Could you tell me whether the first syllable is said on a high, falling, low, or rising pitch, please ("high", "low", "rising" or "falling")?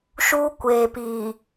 high